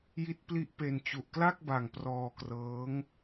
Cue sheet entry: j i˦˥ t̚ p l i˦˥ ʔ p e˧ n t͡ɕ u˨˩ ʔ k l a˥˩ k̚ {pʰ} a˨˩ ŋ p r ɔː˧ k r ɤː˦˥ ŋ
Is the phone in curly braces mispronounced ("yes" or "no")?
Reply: yes